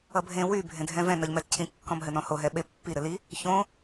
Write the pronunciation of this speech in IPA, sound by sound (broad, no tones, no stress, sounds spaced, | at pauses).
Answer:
ʌ bʱ ẽ w y bʱ ẽ dʱ ɛ̃ v ɛ̃ n ʌ ʎ m ɛ t cʰ ĩ kː ɔ̃ m ɦ ɘ n ɔ̃ h o ɦ ɛ ɓ e pː i ɾ ɘ l i | ç õ